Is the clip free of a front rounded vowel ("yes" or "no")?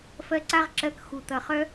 no